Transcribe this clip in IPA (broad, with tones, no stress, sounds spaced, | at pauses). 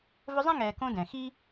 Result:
v ɵ˦ zˤ ɛ̃˥ ŋ ɛː˨ k õ˦ d ɛ̃˩ x i˥